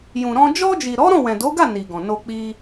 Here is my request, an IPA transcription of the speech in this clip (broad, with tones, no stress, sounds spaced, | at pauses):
j ũ˨ ɾ ɔ̃˧ d͡ʒ ɔ˧ d͡ʒ i˨ ɾ ɔ˨˦ ɾ ɔ̃˦˨ w ɛ̃˨ d o˨˦ ɡ a˦˨ n i˨ ɡ ɔ̃˨ n o˧ k͡p i˧